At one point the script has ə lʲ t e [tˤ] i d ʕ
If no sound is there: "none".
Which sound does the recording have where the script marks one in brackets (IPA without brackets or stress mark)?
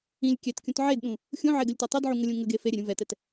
tˤ